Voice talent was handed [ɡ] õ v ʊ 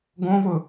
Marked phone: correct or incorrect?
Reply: correct